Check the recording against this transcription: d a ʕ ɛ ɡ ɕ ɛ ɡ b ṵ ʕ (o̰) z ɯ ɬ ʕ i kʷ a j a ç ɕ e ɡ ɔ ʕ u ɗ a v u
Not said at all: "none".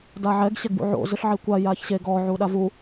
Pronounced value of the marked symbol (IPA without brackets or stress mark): o̰